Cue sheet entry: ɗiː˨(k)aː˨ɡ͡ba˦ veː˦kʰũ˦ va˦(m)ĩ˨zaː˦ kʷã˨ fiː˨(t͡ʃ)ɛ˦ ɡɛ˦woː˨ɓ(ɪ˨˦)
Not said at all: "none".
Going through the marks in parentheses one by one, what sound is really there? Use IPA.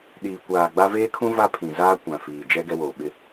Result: kʷ, pʰ, d͡ʒ, ɪ˦

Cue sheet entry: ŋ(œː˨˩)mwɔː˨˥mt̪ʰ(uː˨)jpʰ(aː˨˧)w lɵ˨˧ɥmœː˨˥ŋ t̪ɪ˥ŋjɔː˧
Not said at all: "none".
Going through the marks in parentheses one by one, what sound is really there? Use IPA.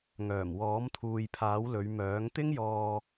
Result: œː˨˩, uː˨, aː˨˥

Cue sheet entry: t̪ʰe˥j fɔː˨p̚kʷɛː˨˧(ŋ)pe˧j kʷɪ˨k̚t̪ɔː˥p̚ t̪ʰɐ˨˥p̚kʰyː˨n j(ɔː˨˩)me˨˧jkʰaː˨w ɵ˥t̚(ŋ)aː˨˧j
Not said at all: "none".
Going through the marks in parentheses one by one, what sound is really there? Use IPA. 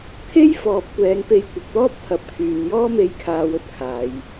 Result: ŋ, ɔː˥, kʰ

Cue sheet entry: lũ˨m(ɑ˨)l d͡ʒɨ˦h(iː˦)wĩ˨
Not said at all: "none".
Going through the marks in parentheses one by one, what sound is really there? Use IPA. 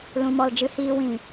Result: ɔ˨, iː˦

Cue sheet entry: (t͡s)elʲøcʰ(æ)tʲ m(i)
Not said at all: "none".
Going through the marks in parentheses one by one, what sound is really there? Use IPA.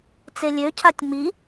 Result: t͡s, a, i

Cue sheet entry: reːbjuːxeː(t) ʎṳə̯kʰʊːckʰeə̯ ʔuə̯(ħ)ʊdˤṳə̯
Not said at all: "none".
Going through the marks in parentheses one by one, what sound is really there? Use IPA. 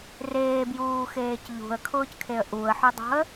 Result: c, ħ

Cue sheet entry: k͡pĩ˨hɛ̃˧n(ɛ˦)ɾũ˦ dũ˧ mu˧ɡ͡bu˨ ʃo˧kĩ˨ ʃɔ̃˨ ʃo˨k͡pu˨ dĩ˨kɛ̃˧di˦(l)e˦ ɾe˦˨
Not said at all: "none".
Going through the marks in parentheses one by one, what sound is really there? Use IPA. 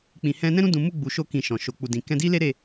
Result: ɛ̃˦, l

